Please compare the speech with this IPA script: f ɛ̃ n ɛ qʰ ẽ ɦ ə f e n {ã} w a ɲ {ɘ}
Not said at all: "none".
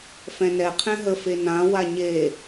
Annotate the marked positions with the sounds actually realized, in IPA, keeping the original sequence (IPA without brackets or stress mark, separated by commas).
ã, e